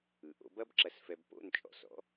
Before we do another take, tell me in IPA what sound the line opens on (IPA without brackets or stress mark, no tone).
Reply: ɯ